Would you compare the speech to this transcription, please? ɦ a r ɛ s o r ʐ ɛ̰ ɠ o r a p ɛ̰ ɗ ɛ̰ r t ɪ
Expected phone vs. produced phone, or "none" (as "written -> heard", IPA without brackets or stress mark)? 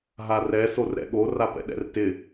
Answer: ʐ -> ɾ